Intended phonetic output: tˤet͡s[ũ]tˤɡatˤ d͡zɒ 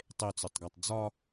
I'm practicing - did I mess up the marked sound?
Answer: yes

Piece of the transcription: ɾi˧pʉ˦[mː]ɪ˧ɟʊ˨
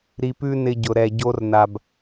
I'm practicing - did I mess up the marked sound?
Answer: yes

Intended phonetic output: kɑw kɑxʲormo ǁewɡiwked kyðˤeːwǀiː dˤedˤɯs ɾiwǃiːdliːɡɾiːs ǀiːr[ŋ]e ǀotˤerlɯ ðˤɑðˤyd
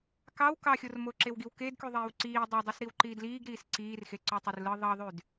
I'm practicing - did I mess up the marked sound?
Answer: yes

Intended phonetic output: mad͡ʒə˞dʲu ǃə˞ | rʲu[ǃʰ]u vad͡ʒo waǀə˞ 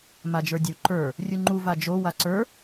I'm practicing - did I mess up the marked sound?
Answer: yes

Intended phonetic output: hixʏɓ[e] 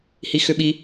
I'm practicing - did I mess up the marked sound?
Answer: yes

